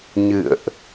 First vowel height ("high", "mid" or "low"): high